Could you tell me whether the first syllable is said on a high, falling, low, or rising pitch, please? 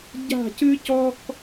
falling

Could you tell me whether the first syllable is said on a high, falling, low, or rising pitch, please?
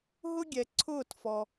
high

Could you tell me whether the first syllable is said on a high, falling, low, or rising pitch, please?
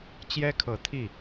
high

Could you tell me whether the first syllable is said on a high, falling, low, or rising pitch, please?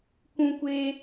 high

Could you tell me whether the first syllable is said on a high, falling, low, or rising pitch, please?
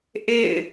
falling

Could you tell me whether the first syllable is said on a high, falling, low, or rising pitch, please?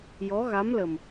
rising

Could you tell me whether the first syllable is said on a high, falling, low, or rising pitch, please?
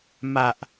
high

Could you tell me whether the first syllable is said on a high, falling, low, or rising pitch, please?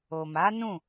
low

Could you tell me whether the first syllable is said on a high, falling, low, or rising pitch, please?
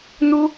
high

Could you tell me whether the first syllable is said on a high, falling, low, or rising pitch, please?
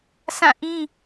falling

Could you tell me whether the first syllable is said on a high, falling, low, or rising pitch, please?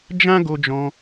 high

